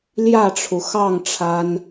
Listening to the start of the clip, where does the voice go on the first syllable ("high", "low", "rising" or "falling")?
falling